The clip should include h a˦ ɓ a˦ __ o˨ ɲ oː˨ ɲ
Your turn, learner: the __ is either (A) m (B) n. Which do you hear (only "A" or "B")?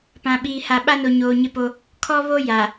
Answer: B